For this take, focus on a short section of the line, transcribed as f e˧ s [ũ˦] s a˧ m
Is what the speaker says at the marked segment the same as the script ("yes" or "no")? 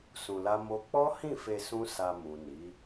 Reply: yes